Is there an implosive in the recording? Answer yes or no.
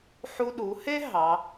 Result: yes